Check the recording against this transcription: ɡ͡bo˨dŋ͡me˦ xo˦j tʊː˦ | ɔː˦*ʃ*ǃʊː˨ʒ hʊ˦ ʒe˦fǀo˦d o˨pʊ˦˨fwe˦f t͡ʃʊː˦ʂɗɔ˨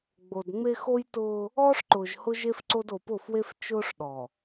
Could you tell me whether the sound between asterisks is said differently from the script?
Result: yes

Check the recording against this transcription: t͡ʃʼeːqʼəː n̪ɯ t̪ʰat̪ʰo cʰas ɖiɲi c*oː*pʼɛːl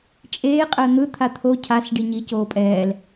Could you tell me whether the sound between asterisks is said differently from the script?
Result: no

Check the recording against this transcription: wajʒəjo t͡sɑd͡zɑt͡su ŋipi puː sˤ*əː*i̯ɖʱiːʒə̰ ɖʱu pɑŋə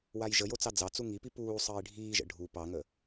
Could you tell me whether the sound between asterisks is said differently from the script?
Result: no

